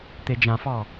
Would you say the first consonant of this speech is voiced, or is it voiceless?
voiceless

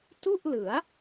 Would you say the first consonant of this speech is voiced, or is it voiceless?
voiceless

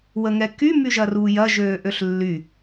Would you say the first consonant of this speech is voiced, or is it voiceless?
voiced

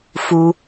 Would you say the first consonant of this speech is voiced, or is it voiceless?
voiceless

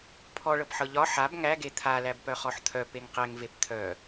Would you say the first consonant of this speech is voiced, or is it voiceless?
voiceless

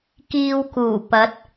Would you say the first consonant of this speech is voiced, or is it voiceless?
voiceless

